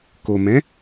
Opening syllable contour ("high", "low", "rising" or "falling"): low